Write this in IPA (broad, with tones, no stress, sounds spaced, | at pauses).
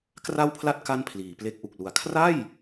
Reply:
k r a˥˩ w pʰ l a˥˩ t̚ k a˥˩ n pʰ l iː˩˦ p l e˦˥ k̚ ʔ u˨˩ k̚ l u˩˦ a̯ kʰ r a˥˩ j